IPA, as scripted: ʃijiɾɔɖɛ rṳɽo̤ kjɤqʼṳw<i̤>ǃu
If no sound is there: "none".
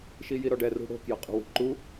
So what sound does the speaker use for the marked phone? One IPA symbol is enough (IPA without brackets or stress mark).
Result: i̤